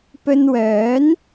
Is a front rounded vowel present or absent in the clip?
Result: present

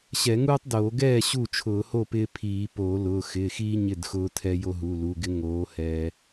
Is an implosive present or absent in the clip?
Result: absent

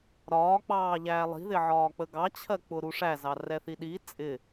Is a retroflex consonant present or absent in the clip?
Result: present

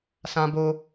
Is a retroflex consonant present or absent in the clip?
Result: absent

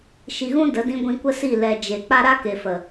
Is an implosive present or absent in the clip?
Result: absent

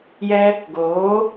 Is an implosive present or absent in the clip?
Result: absent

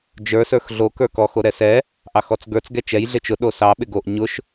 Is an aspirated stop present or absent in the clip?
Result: absent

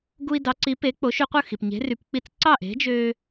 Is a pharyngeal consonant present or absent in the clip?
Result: absent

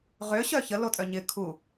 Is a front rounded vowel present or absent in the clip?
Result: present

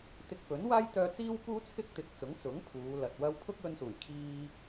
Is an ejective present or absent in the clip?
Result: absent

